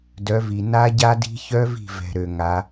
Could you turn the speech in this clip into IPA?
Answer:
d œ˨˦ v i˨ n a˦˥ ɟ a˦˥ d i̤˦˥ ç œ˦˥ v i̤˦˨ v ɛ̤˨ ɾ ø˨ ŋ a˨˦

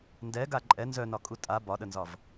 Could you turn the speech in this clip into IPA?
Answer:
n d ɛ ɡ a ǃʼ ɛ n z œ n ɒ kʼ u tʼ a b ɒ ɗ ə n z ɒ v

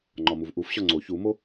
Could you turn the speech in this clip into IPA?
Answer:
ŋ͡ǃ ɒ m u v ʔ u f ɕ ɒ ŋ͡ǀ o ç u m o

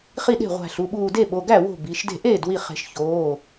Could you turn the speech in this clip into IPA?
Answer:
χ i˥˩ ɗ e̤˥˩ ʁʷ æ̤˧˩ ɬ u˩˧˩ ɓ uː˧˩ d e˥˩ ɓ o˩˧˩ ɡ æ˥˩ w o̤˥˩ b i˩˧˩ ʃ d e̤˥˩ ʔ eː˥˩ d w i˧˩ χ e̤˨˩˦ ʃ ç oː˩˧˩

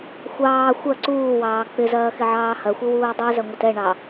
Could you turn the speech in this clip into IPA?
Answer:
xʷ ɑː xʷ ɐ ǀ uː w ɑː k͡p ɪ z ɐː x ɪ ʕ ɑː h ɐ xʷ ɪ w uː dˤ i z ɐ ŋʷ ɐ t ɛ ɳ ɑ

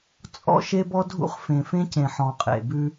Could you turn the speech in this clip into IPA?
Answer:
t͡sʼ ɔ̰˦ ʃ e˦ b ɔ˦ dʱ ṵ˦ χ f ẽ˨ f ẽ˦ c ẽ˨ ħ ɔ̃˨ qʼ ḛ˨ b ʉ˦

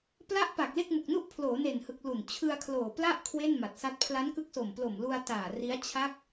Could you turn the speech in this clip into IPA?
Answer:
p l a˦˥ ʔ p a˨˩ k̚ l e˥˩ k̚ m u˨˩ k̚ n u˥˩ ʔ pʰ l oː˩˦ n e˨˩ n h ɯ˨˩ k̚ l u˨˩ n t͡ɕʰ ɯ˧ a̯ kʰ l oː˨˩ p l a˥˩ ʔ kʰ w e˥˩ n m a˨˩ t̚ s a˦˥ t̚ pʰ l a˦˥ n k ɯ˦˥ k̚ s o˨˩ m p l o˨˩ m l u˧ a̯ t aː˨˩ r i˦˥ a̯ t͡ɕʰ a˦˥ k̚

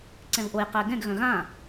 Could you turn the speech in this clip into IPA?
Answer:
ǀ ɛ̃ v ʔ o j q ɛ ɡ ɛ̃ ɡ ɣ œ̃ ɣ ã

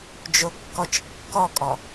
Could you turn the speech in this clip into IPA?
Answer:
d͡ʒ o kː ɔ t͡ʃ kː ɔ kʼ ɔ

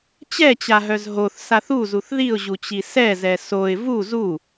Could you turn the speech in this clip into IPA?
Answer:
t͡ɕ ɛ t͡ɕ a ɦ œ z ɦ o θ s a θ u z u θ ð i ʊ̯ ʑ u t͡ɕ i s ɛ z ɛ s o ɪ̯ v u z u

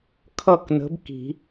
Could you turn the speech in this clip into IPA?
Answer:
kʰ ʌ˥˨ k n ə̤˨˥ b k i̤˨˩˦

